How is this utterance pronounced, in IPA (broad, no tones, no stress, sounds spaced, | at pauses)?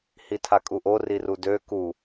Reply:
h i tʰ a kʼ u ʔ o r i r u d ø k u